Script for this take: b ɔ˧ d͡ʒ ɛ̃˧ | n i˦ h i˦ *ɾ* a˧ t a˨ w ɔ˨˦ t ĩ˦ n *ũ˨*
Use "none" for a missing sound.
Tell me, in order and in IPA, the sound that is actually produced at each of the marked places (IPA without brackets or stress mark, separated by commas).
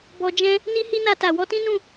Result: n, ũ˦˨